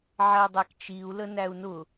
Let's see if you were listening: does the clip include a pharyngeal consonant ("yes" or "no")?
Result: yes